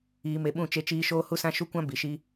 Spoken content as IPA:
iː˧me˧ɓũ˦˨ t͡ʃe˦t͡ʃiː˦ ʃoː˦hu˦sã˦ ʃu˦kʷã˦ bi˨˦ʃi˦

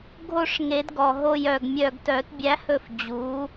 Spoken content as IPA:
ɡʱo˦˨ʂŋe˨˩˦dɡɔ˨˩ɦo˦˨j œ˦˨ɡmʲœ˦˨ɡ tœ˨˩˦tbʲæ˨˥hɵ˦˨f d͡ʑu˨˥

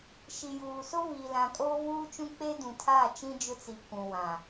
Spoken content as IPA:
ʃi˨juː˨so˦ vi˨lã˨kʼo˦ vuː˦t͡ʃũ˦k͡pe˦ dũ˨tʰa˦˨ t͡ʃĩ˦d͡ʒʊ˦t͡si˨ kʷũ˨wã˨

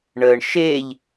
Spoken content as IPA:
ɳəːɳ ʃeːʎ

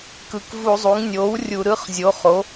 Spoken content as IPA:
kɯ˨˩kvu˧˩˧zˤu˩˥ŋ nʲoː˩˥w rʲu˧˩˧ɾɯ˧˥˧χ zʲo˩˥ χo˩˥

